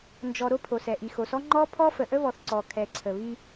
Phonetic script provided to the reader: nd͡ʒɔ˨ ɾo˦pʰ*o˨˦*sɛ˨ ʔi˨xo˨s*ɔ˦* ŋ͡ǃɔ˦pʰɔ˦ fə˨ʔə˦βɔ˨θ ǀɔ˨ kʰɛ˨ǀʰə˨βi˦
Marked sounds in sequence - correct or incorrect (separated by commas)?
incorrect, correct